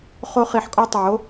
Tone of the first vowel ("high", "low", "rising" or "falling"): high